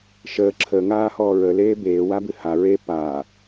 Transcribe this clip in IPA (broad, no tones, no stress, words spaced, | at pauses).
ʃəː ǁʰəːŋaːhɔː ɹəleː beːwabɨ ha ɹe paː